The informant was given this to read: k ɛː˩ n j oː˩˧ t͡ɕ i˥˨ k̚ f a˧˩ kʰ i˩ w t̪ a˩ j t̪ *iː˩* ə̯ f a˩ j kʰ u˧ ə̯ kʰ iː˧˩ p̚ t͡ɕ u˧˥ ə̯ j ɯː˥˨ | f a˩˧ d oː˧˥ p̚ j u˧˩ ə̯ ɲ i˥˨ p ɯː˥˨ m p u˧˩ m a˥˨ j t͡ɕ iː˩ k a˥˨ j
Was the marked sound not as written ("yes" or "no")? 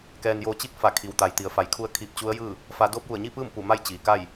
yes